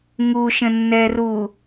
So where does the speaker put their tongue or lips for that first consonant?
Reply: velum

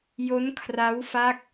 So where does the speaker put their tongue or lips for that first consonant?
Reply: palate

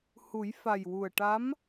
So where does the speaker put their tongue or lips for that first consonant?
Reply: throat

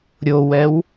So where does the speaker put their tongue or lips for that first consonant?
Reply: tongue tip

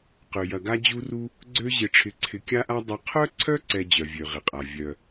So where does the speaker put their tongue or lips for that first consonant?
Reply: uvula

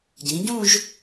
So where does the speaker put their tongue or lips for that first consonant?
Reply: palate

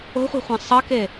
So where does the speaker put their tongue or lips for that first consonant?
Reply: uvula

